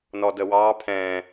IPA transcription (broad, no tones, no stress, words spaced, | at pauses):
nɔdəwɑ pʰɛ̃